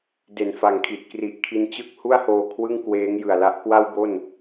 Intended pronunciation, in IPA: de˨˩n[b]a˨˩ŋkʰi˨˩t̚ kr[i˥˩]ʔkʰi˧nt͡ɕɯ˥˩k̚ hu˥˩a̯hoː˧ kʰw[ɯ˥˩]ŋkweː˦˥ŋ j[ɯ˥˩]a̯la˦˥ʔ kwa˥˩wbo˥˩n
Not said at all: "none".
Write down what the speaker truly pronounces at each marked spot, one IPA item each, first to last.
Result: f, i˨˩, ɯ˥˩, ɯ˨˩

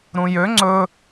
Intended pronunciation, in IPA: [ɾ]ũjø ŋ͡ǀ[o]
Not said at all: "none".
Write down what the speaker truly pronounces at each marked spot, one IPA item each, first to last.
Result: ɾ, ɵ

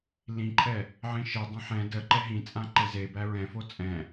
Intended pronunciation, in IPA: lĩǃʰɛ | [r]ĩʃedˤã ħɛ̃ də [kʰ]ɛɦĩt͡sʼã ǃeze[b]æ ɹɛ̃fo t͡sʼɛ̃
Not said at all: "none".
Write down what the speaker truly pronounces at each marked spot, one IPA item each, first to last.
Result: ʕ, ǃ, b

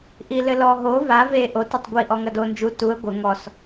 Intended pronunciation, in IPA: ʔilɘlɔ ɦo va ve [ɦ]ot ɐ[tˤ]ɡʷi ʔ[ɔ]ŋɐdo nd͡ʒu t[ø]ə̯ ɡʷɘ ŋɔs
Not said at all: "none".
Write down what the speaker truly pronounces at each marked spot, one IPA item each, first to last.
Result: ʔ, tˤ, ɔ, u

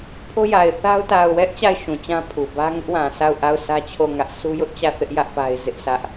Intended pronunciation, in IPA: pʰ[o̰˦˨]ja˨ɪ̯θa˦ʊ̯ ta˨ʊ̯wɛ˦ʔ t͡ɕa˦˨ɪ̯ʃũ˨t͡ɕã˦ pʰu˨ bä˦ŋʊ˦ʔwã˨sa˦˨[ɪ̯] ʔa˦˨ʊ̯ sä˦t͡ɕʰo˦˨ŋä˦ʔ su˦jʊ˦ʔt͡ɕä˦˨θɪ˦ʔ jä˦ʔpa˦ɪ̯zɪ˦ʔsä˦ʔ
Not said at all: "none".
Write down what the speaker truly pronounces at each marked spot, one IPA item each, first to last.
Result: o˦, ʊ̯

